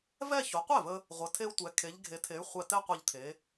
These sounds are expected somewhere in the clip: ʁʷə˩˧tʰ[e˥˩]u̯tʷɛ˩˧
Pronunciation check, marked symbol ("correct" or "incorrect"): incorrect